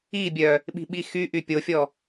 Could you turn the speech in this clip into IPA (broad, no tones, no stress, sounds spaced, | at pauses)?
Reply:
i bʲ œ | ɓ i̤ ɓ i x y ʔ y pʲ o fʲ ɔ